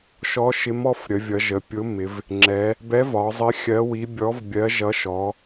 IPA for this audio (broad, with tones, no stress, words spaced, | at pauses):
ʃɔ˧˥ʃɪ˧˥mɔ˧˥f ɾʲə˩˧vʲʌ˩˧ʒə˩˧pʲʊ˧˥ mɪ˩˧v | ŋ͡ǁɛ˩˧ | bɛ˧˥vɒ˩˧zˤɪ˧˥ xʲɜ˧˥wi˧˥ bʲɔ˧˥vbʲɜ˧˥ʒʌ˧˥ ʃɔ˩˧